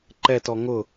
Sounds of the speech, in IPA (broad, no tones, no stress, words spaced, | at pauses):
ǃɛtɔ ŋʊ